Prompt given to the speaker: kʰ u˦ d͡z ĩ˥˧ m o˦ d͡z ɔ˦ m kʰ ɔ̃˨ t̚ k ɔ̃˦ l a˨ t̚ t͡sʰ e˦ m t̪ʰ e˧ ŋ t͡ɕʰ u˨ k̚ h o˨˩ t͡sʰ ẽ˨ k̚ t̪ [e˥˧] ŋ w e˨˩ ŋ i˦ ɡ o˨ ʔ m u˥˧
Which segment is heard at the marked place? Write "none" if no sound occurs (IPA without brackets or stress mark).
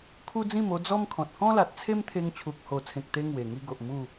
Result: e˧